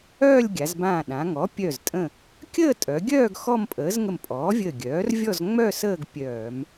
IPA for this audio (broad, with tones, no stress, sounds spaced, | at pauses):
œː˥˧ lʲ ɡʲ a˩˧ z b ãː˧˩ ɗ ã˩˧ ŋ ɔ˩˥ pʲ œ˧˩ z tʼ ə̃˧˩ | kʲ əː˥˧ tʼ œ˩˧ ɡʲ œː˥˧ ɡ x ɔ˥˧ m pʼ əː˩˥ z ŋ ə˧˩ m pʼ ɔː˩˥ vʲ əː˧˩ ɡʲ œː˩˥ r vʲ ɔ˥˧ z ŋ͡m œ˥˧ s əː˥˧ ɡ pʲ œː˧˩˧ m